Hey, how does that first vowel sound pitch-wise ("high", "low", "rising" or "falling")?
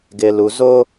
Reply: low